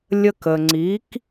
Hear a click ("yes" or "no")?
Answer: yes